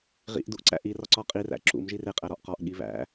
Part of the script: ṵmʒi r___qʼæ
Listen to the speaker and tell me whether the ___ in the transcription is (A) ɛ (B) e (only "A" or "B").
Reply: B